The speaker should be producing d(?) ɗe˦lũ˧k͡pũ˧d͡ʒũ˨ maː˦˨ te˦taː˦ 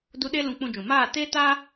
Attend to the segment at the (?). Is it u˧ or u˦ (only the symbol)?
u˦